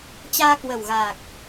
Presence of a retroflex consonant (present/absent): absent